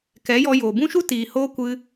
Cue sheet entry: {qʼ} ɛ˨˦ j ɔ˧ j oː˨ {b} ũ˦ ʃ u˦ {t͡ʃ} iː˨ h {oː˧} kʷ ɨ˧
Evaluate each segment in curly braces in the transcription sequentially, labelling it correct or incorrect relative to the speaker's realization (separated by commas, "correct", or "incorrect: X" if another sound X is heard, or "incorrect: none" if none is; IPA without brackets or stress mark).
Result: incorrect: k, correct, incorrect: t, correct